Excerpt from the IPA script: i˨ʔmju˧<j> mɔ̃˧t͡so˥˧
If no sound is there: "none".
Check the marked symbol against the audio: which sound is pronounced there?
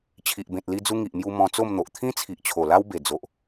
none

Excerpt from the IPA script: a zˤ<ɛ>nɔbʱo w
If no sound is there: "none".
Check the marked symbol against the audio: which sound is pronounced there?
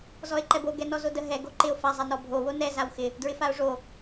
ɛ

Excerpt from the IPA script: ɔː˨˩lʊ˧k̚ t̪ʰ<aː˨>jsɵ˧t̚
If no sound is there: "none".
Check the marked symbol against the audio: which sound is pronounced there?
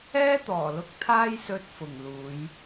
aː˥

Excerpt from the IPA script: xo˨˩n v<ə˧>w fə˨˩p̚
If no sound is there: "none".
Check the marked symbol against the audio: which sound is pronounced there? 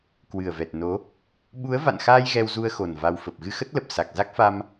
a˧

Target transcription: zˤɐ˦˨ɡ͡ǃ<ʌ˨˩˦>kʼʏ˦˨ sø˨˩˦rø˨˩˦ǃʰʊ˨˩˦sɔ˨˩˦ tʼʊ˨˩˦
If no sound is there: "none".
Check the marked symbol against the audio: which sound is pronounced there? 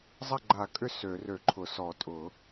a˨˩˦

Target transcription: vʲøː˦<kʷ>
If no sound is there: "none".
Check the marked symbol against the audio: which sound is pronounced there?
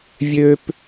p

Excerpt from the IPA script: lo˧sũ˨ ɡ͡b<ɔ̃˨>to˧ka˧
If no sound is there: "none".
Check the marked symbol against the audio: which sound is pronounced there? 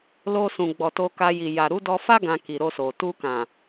ɔ˨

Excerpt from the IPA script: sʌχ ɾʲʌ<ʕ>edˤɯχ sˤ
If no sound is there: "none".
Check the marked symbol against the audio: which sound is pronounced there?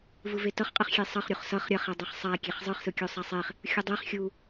χ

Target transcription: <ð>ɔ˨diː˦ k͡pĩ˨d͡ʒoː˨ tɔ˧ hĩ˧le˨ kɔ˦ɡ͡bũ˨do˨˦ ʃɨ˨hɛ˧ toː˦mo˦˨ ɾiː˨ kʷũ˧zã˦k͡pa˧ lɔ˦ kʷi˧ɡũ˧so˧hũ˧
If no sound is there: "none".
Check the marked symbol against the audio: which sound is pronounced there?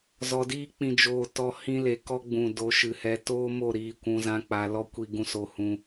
z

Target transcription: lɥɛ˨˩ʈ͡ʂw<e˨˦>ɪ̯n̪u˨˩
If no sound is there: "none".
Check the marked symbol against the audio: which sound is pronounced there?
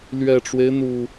e˦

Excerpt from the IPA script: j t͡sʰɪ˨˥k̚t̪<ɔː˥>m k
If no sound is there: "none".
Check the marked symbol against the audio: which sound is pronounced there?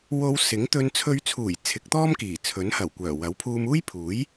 ɔː˥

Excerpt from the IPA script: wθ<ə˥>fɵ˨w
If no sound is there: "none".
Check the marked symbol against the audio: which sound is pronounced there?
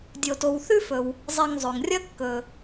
ʉ˥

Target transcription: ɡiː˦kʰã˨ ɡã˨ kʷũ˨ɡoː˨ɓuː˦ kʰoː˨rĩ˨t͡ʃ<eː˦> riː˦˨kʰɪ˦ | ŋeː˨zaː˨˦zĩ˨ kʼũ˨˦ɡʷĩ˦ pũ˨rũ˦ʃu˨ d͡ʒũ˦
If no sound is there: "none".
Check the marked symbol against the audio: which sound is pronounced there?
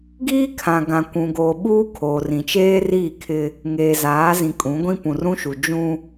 eː˦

